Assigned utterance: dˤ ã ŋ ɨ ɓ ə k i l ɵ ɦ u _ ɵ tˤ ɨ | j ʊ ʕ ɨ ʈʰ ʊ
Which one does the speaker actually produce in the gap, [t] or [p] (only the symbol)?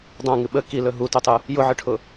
t